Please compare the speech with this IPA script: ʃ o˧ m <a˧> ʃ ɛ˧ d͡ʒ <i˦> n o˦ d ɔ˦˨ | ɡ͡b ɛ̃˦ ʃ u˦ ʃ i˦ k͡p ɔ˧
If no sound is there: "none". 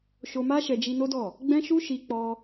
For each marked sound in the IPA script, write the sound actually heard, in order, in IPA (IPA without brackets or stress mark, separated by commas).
a˦, i˧